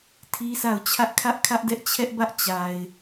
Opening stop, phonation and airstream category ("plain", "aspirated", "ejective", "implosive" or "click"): aspirated